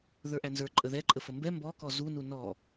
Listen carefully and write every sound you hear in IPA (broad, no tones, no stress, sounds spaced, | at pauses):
ð ə˞ ʔ æ n z ə˞ ǃʼ ə ð ɛ ǃʼ ə f ə m b ɛ m b ɔ k ɔ z u n u n ɔ